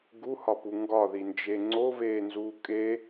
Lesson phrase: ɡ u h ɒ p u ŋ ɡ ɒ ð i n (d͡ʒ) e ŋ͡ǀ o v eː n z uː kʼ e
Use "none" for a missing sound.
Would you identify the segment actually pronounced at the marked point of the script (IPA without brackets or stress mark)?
d͡ʒ